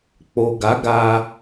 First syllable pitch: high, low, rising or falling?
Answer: low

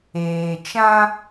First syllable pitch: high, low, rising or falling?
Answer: low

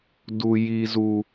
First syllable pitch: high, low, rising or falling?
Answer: high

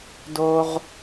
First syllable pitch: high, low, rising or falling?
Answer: low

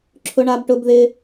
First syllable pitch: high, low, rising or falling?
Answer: high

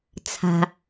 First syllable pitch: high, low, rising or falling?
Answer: low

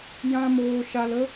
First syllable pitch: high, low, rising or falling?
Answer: high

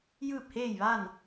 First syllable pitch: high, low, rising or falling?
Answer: falling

